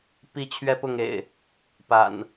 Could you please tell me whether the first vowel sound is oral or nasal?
oral